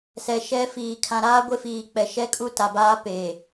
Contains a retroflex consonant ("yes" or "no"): no